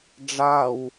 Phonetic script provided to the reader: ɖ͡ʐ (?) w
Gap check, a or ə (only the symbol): a